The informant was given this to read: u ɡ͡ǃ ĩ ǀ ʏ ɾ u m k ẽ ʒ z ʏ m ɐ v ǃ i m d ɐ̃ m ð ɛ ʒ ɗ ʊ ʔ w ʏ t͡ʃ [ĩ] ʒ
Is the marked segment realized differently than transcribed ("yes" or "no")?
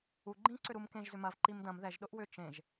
yes